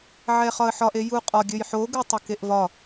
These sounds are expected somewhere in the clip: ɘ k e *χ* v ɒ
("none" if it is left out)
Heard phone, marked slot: ʔ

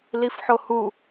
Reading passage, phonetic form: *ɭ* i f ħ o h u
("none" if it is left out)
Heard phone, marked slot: l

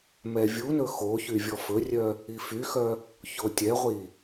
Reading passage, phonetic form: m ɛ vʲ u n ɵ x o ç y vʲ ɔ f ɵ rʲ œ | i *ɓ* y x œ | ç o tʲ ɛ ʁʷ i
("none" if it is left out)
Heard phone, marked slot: f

